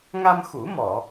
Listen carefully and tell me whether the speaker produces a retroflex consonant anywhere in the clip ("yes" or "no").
no